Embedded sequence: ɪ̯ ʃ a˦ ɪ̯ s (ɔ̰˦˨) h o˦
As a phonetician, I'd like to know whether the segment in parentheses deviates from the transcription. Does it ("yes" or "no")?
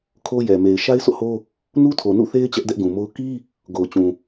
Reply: yes